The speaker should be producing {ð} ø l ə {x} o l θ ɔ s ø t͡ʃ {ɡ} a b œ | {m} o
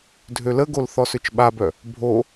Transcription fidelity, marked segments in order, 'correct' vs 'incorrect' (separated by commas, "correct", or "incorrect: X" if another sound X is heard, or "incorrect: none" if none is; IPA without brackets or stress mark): incorrect: dʱ, incorrect: ɡ, incorrect: ɓ, incorrect: bʱ